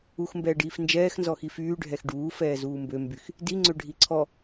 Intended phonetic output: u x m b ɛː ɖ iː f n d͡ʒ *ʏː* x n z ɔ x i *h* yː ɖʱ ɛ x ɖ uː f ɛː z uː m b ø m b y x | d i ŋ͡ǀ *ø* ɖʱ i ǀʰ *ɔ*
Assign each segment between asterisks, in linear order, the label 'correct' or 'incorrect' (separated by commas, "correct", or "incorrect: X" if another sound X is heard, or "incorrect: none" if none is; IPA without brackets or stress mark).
incorrect: ɛː, incorrect: f, correct, correct